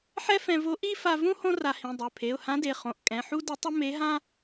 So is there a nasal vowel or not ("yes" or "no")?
yes